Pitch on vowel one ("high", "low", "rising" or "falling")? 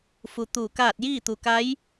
low